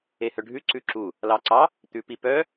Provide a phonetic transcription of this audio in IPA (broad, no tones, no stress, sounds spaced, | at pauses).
e h œ ɖʱ ʉ ǀ ʉ ǁ u | l ɑ ǀ ɑ | t̪ ʉ p i p œ